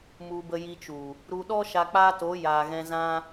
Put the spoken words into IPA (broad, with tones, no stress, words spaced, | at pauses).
mu˧bə˧ ji˧t͡ʃu˨ | ɾu˧ɗɔ˦ ʃa˧k͡paː˦to˨˦ jaː˨ɣɛ̃˧zã˦